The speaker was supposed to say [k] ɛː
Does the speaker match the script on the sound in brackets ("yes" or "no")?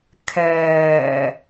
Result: no